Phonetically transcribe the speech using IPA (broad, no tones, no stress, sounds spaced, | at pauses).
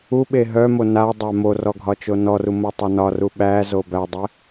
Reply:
u ɓ e ɦ œ m o n a dˤ æ m o r ɔ ɡʱ ɒ t͡ʃ o n ɔ r u m o tˤ a n ɒ r u ɓ æ z o b æ dˤ e